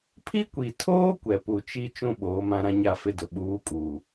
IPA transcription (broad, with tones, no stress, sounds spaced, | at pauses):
pʰ i˦ kʷ i˨ tʰ oː˦ kʷ ɛ˨ p u˨ t͡ʃ i˦ t͡ʃ ũ˦ ɓ oː˨˦ m ã˦ ɾ ã˦ ɲ a˦˨ f ɪ˦ d ʊ˨ ɓ uː˨˦ kʼ uː˨